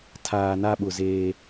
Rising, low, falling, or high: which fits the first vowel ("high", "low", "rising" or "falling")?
low